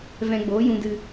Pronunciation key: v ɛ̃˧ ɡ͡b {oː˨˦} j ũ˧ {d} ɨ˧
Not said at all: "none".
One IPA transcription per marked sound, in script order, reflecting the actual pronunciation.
oː˨˦, d

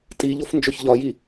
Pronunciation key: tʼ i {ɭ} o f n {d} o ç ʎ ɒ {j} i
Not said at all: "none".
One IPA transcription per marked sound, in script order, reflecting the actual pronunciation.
ʎ, d͡ʒ, j

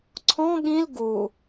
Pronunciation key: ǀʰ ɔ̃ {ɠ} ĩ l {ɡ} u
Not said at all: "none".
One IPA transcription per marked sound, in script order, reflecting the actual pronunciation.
ɠ, ɡ

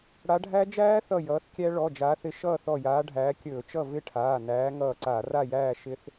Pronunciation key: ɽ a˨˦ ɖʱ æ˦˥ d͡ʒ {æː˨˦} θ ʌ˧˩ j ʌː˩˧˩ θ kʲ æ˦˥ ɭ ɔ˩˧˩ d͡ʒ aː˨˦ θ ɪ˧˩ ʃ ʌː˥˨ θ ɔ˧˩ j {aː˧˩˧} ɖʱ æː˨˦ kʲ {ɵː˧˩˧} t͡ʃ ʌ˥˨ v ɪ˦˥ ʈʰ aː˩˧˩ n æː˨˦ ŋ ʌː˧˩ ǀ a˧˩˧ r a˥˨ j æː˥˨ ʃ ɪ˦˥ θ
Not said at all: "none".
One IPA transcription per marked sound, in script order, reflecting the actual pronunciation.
æː˦˥, aː˨˦, ɵː˧˩˧

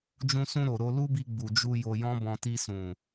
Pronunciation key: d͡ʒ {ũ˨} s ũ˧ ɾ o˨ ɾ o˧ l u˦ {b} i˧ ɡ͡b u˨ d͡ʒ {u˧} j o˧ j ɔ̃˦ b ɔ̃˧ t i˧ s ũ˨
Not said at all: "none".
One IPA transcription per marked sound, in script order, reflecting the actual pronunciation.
ũ˧, b, u˧

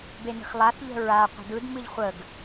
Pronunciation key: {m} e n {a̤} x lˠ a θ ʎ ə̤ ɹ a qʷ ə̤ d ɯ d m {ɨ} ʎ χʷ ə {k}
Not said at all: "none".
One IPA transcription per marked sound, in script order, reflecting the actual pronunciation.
b, ə̤, ɨ, ɡ

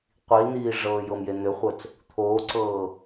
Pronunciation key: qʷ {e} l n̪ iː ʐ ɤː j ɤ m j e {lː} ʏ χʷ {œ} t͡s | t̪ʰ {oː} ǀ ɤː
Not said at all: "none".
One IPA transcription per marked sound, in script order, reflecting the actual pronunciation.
i, n̪, œ, oː

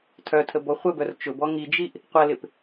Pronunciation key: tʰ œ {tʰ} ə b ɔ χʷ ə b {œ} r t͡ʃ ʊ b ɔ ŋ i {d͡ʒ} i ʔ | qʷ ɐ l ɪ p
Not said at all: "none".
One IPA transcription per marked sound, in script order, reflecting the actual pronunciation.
tʰ, œ, d͡ʒ

